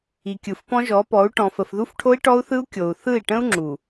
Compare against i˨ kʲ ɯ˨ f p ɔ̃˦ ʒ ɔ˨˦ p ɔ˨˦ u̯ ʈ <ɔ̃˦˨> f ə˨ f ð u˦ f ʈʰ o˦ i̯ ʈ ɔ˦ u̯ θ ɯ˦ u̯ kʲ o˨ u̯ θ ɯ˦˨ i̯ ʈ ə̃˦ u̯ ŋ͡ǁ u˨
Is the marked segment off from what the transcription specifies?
yes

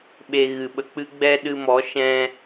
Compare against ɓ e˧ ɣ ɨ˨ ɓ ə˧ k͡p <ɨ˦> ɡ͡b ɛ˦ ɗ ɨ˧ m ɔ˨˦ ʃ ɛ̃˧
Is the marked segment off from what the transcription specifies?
no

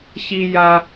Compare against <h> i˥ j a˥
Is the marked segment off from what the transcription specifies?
yes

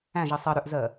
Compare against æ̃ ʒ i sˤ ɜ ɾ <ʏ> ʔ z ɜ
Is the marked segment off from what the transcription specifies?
no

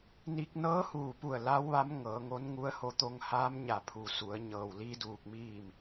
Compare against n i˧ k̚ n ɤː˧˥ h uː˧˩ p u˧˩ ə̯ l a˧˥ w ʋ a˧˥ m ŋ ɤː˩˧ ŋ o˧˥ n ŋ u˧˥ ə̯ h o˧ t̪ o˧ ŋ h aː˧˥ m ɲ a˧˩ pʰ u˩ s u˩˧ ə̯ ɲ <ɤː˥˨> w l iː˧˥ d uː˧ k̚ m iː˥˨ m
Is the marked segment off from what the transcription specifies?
yes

